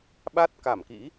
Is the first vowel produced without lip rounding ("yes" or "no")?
yes